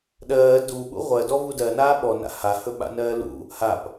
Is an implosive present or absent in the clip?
present